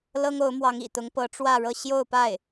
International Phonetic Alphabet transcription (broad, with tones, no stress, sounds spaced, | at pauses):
l ɤ˥ ŋ o˧˥ ʊ̯ m w ɑ˧˥ ŋ ḭ˨˩ t̪ ʊ˧˥ ŋ p ɤ˧˥ ʈ͡ʂ w ä˥˧ ɻ ɤ˥˧ ɕ j o˥˧ ʊ̯ p a˥˩ ɪ̯